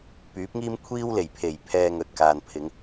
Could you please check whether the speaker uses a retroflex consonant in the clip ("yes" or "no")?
no